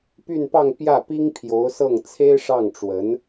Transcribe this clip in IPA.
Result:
py˥˧npɑ˥˧ŋ pjä˥˩pi˥ŋpʰjo˧˥ʊ̯sɤ˥˩ŋ t͡sʰe˥ɪ̯ʂɑ˥˩ŋʈ͡ʂwə˧˥n

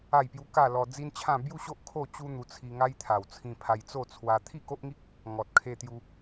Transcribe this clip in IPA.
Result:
a˥˧jpju˦ ka˥˧lɔ˧ d͡zi˦nt͡ɕʰã˥˧ bju˥˧ɕo˦ʔ kʰo˥˧t͡ɕu˦ n̪u˧ t͡sʰi˧ ŋa˦jt̪ʰa˨˩wt͡sʰĩ˧ pʰa˧jt͡so˥˧t͡sʰwa˧ t̪ʰi˥˧ko˦ʔŋi˦k̚ | ŋɔ˨t̚kʰe˧ t̪ju˧

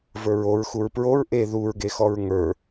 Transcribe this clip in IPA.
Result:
və˞ɹoɹ xuɹpɹoɹ ʔe ðuɹɡexɔɹ ŋə˞

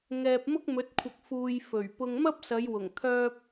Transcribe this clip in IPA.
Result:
ŋɛː˨p̚mʊ˥k̚mɵ˨˥t̚ kʷʰɐ˨k̚fuː˨j fɵ˨˩ɥpʊ˧ŋ mɐ˥p̚sɐ˨˧jwʊ˨˩ŋ t̪ʰœː˧p̚

